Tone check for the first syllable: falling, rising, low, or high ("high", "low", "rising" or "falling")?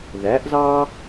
rising